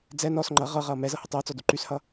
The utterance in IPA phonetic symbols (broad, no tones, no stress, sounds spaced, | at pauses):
d͡z ɛ n ɔ s ŋ͡ǃ ʌ ʁ ɤ ʁ ʌː m ɛ z ɤ h ə tˤ əː t͡s ɔ d u ǃ y s h ʌ